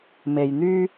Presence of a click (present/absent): absent